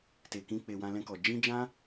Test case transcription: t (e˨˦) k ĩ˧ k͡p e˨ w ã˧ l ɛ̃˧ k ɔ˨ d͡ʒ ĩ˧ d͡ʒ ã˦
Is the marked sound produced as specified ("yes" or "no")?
no